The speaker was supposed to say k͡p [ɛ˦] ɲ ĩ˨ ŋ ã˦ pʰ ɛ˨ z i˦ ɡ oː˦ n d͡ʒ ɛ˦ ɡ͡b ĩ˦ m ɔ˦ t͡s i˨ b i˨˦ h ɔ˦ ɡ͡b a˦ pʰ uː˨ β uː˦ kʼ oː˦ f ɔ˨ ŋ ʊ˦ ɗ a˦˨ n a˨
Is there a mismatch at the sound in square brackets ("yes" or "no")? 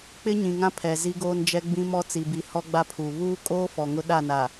yes